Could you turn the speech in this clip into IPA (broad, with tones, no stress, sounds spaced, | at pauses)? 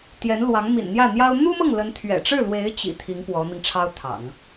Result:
t̪ j ɛ˧˥ n l w ɑ˧˥ ŋ m ḭ˨˩ n n̪ j ä˥˩ n̪ j ɑ˥ ʊ̯ n̪ u˥ m ɤ˥˩ ŋ l ə˧˥ n t̪ʰ ɥ ɛ̰˨˩ ʈ͡ʂ ɻ̩˥˩ l w e˧˥ ɪ̯ t͡ɕ ḭ˨˩ t̪ʰ i˧˥ ŋ p w ɔ˧˥ n̪ i˧ ŋ ʈ͡ʂʰ ɑ˥ ʊ̯ t̪ʰ ɑ̰˨˩˦ ŋ